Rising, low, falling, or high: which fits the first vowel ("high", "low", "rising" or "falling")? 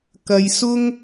low